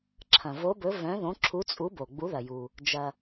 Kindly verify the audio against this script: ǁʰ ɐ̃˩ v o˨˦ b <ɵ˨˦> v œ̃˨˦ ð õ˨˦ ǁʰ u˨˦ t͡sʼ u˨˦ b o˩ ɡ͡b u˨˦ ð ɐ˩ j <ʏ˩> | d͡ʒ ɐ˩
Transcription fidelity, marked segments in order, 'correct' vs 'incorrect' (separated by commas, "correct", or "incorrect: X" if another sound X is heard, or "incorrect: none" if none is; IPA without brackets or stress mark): correct, incorrect: u˩